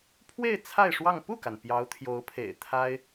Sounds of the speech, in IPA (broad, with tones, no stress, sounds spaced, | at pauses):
pʰ w e˥˧ ɪ̯ t͡sʰ a˥˧ ɪ̯ ʂ w ɑ˥˧ ŋ p u˥˩ k a˩ n p j ɑ˧˥ ʊ̯ t̪ʰ j o˧˥ ʊ̯ pʰ ḛ˨˩ ɪ̯ t̪ʰ a˥ ɪ̯